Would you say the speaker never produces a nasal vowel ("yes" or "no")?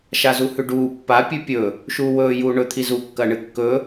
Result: yes